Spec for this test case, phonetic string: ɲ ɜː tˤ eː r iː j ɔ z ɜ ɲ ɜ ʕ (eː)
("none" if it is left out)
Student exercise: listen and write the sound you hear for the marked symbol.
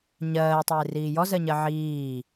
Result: iː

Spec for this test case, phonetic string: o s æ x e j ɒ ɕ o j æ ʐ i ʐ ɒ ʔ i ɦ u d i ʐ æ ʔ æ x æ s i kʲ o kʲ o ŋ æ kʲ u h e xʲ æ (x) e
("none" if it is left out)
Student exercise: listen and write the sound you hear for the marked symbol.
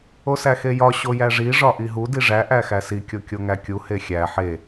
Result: ħ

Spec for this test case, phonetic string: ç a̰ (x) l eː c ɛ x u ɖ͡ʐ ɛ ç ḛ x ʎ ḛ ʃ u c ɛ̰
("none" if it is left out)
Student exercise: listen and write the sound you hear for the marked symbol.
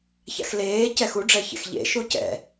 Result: x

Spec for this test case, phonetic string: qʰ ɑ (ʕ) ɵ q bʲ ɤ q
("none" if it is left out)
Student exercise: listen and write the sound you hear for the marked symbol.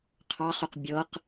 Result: χ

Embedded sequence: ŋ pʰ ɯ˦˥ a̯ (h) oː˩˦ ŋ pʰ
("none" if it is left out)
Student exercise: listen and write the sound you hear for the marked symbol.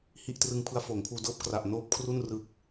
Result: f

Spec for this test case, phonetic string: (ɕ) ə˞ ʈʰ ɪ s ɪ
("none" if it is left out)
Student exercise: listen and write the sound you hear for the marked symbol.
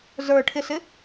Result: z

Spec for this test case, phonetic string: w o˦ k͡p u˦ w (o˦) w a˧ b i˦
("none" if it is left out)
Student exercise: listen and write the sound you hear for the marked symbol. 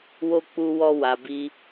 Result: ɔ˦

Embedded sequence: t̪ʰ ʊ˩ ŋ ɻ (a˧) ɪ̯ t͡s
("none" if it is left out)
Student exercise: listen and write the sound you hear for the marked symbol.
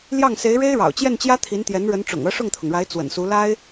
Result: a˧˥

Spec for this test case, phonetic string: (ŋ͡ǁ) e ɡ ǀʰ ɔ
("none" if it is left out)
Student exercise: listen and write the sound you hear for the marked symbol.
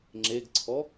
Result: ŋ͡ǁ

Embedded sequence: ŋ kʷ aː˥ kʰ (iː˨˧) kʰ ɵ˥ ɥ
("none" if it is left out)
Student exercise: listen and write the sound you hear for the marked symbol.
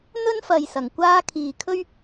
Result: iː˨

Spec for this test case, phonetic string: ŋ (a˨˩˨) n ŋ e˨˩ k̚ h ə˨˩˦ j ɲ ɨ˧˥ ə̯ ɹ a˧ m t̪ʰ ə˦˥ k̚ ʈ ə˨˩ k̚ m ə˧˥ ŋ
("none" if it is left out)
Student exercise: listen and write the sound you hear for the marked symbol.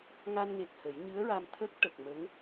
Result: a˧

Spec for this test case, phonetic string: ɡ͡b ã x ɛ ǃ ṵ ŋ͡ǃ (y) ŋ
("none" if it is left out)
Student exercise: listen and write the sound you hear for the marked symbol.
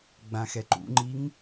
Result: i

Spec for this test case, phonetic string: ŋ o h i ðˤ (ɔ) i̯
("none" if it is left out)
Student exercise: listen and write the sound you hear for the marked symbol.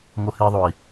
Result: o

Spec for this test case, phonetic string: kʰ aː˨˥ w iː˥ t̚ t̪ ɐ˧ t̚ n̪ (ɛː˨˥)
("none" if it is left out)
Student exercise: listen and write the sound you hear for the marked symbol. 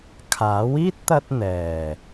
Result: ɛː˨˩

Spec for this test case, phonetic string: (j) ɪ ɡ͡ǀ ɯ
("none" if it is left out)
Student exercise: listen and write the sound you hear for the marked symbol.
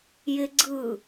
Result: j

